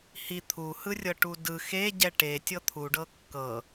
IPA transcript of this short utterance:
h i t̪ʰ u h ɯ rʲ ɤ ʈ u d ɯ x e ɟ ɛ ʈ e tʲ ɤ t̪ʰ u ɖ ɤ kː ɤ

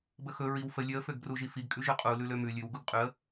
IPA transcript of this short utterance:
b ə x ɵ ɹ i w f ə lʲ ø ə̯ f ø ɡ b r u ʒ i f i ɡ kʼ ʉ ʒ ʉ qʼ u l ʉ l ø m ʉ lʲ ʉ w ɡ u ɡ qʼ ʉ ə̯

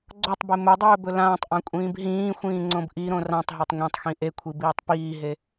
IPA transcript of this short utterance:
ɡ͡ǀ o tˤ b e m ɵ dˤ ɵː b ɵ l ãː tˤ ʔ ã kʷʼ ĩː b ɦ ĩː xʷ ĩː ŋ͡ǀ õ b ʔ i ɾ õ r ã tˤ ɦ a tˤ ŋʷ ẽ tˤ x ĩ ʔ e kʷʰ i b iː tˤ p iː ɦ e

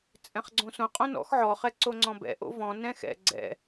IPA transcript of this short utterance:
t͡sʼ ɛ̃ χ ɡ͡ǀ õ s õ qʼ õ n ɔ̰ x ʕ ɔ χ ɛ ǀ o ŋ͡ǀ ɔ̃ b ɛ̰ ʔ o̰ v ɔ̃ n ɛ̃ x ɛ̰ ɡ͡ǀ ɛ̰

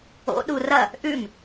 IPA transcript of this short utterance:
o̰ ɗ u r ɐ | ʔ ʉ m

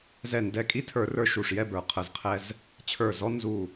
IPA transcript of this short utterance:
z ɛ˧˩ n d ɛ˧˩ kʼ i˥˨ tʰ ə˞˧˩˧ r ə˞˧˩ ʃ u˧˩ ʂ j ɛ˥˨ b ə˞˧˩˧ qʰ ə˧˩˧ z qʰ ɛ˦ z | t͡ɕʰ ə˞˧˩ z ɔ˦ n z u˧˩

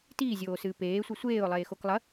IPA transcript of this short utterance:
t iː zʲ oː s ɨː p eː sʷ i sʷ eː ʊ̯ lˠ eː x o k lˠ ɐ

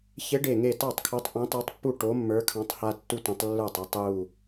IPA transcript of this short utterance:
ç e˨˥ ɖ e˧˩ ŋ e˥˩ t ɑ˥˩ tˤ kʰ o˨˥ tˤ ʔ ɛ̃˨˥ tˤ e˨˥ tˤ pː u˥˩ ʈ o˨˥ mː ə˞˨˥ kʰ ɑ̃˨˥ tˤ h a˦ tː u˦ tʷ ã˨˥ tˤ lː ə˞˥˩ tˤ ɑ˦ tˤ j u˧˩

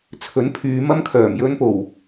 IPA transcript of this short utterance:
t͡sʰ ɵ˨˥ n pʰ yː˨˧ m ɐ˧ m kʰ œː˨˩ m j ɵ˨˧ n p o˨˩ w

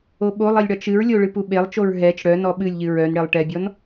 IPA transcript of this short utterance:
o ɓ o lˠ i lʲ ɽ ɒ t͡ʃ ɨ ɹ lʲ o ɭ ɨ p u ɓ e lˠ t͡ʃ o ɹ ɦ ɛ t͡ʃ ɽ œ n ɔ ɓ ɨ lʲ ʎ ɨ ɹ œ n ɽ e lˠ ʈ ɛ bʲ ɔ n

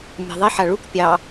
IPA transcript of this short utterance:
mʲ ɑ̤ ðˤ i ħ a ɭ u k pʲ ɑ

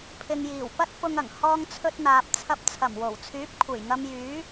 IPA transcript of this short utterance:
pʰ ɪ˨ ŋ j iː˨˩ w p ɐ˥ t̚ f ʊ˧ ŋ ɐ˨˩ ŋ h ɔː˧ ŋ t͡sʰ ɵ˧ t̚ n̪ aː˨ p̚ t͡sʰ ɐ˧ p̚ t͡sʰ ɐ˨˩ m w o˨˩ w t͡sʰ yː˨˥ p̚ kʷʰ e˨˩ j ŋ ɐ˧ m j yː˨˥

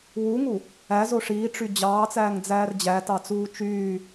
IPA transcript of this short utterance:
w u ŋ u | æ z o ʂ iː ʈ͡ʂ y d͡ʑ ɑː t͡s æː ŋ d͡z æː r d͡ʑ æ t ɑ t͡s uː t͡ʃ yː

